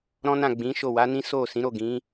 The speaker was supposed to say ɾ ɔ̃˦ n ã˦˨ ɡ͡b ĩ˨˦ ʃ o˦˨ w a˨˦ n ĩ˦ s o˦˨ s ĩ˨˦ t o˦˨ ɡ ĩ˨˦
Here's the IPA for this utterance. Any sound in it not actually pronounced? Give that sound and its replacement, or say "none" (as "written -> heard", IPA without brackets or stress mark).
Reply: t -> ɾ